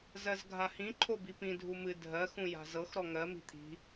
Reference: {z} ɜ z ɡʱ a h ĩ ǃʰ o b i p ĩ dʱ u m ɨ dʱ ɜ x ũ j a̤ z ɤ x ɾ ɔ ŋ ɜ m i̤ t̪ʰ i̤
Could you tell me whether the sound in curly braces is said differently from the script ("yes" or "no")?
no